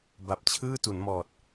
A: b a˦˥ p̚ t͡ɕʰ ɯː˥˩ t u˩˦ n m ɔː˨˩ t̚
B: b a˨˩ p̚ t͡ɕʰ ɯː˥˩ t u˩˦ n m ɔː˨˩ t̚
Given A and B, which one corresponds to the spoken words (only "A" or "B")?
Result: B